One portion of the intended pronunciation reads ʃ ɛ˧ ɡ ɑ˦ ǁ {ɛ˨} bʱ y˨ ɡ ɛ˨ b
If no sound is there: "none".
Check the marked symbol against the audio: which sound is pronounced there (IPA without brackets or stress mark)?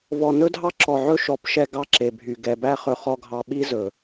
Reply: e˨